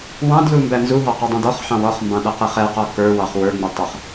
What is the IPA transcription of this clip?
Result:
wɑ̃dlu mbænzuɦɑ qɛdˤũdɔχħɑ̃w ɔχmbɑ̃ ɗʌqɪχɛqɔ kə˞ wɑχwə˞ŋ͡mɪ tˤʌχ

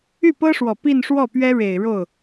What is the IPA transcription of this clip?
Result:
y˥˩pɤ˥ʂwɔ˨˩ pi˥˧nʂwɔ˥˩pɥɛ˥ ɻe˨˩ɪ̯ ɻo˥˩ʊ̯

